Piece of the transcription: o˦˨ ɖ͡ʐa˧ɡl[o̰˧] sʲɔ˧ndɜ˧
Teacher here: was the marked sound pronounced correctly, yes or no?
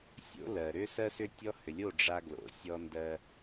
no